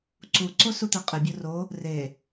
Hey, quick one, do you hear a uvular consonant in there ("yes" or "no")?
yes